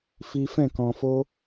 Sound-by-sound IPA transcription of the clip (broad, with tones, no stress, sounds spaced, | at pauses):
f i˦ f ɛ̃˦˨ k ɔ̃˧ f o˦